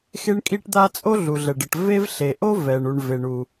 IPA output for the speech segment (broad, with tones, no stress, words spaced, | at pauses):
xe˥ɳkʼi˥ʈd̪a˥ t͡sʼo˥ɮu˩ɮɛ˩ɖə˩ʈ ve˥v ɬe˩ʔo˥ vɛ˩ɳu˩ɳve˩ ɳu˩